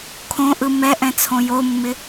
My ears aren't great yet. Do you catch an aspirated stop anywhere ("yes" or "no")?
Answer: yes